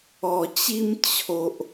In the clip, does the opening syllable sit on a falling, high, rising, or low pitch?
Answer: low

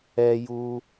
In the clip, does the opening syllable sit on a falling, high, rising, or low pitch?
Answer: high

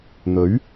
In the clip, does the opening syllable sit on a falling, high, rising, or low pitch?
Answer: rising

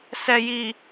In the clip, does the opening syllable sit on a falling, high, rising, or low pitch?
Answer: low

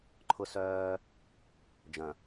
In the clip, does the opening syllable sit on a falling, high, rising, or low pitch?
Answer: high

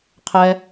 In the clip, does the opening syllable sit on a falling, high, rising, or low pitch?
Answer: low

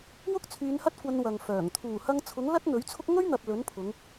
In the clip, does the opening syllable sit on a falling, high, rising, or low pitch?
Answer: high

